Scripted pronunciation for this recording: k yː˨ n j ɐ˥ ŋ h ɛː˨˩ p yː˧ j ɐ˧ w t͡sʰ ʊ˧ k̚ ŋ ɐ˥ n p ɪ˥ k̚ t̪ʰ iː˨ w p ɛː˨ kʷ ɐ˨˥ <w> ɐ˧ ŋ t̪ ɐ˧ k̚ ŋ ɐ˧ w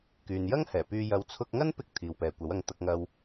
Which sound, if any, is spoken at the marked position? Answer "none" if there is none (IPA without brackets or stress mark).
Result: w